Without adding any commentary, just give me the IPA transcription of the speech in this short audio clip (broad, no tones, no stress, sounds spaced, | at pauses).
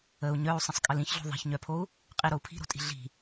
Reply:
ə u̯ ɲ œ u̯ sˤ ə̃ sˤ kʼ ə l ĩ ç ɮ o̤ ðˤ i̤ ç ɲ œ pʰ o u̯ | qʼ i ɾ o u̯ pʰ i̤ ɾ o̤ tʼ i̤ ɮ i̤